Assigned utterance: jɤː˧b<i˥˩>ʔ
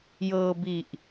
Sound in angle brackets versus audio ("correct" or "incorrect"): incorrect